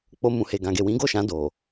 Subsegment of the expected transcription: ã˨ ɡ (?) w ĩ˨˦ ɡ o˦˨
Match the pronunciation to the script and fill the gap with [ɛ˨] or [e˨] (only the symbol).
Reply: e˨